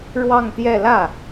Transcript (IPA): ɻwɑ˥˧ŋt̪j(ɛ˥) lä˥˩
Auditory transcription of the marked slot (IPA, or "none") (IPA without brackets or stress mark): ɛ˥˧